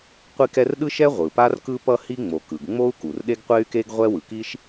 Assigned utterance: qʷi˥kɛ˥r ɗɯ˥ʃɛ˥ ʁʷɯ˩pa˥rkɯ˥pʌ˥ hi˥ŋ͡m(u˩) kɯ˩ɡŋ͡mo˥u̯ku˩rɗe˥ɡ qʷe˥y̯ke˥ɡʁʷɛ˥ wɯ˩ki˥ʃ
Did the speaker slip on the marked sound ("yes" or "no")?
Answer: yes